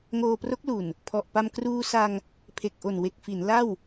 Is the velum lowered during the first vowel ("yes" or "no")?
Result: no